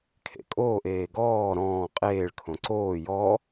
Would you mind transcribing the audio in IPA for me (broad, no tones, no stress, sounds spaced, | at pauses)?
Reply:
kʰ ḛ kʼ oː ʔ eː ɡ ɔː ɾ ɔ̃ː qʼ eː ɭ kʰ õ ǀ oː j ɔ